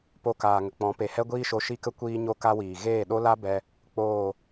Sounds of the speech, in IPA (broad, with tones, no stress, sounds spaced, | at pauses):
p o˧ k aː˨ ŋ ə˨ k͡p ɔ̃˨˦ p e˨ h ɛ˦ ɡʷ iː˦ ʃ o˧ ʃ i˦ k ə˦ kʷ iː˦ ɲ o˦ k a˦ w iː˨ ɣ eː˦˨ ɗ o˦ l a˦ b ɛ˦ | k͡p oː˦˨